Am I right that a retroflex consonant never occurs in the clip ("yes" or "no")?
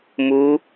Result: yes